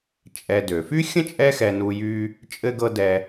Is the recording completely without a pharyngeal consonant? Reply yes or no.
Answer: yes